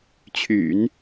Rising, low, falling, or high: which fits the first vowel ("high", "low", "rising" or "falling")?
low